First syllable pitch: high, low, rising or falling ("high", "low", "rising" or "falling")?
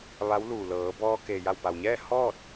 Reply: rising